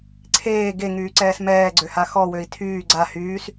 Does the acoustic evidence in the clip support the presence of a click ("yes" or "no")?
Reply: yes